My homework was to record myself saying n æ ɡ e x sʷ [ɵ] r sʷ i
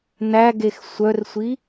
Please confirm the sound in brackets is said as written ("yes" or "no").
no